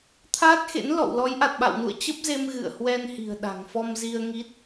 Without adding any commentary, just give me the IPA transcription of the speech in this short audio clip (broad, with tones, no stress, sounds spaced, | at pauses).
t̪ʰ aː˦˥ t̚ x ḛ˧˥ n l ɔ̰˧˨ w l ɔ˨˦ j ʔ a˨˩ t̚ ɓ a̰˧˨ w n ṵ˧˨ ə̯ t͡ɕ ə˦˥ p̚ z e˧ m ɣ ɨ̰˧˨ ə̯ h w ɛ˧ n h i̤˨˩ ə̯ ɗ a̤˨˩ ŋ f ɔ˧ m z i˧ ə̯ ŋ i˦˥ t̚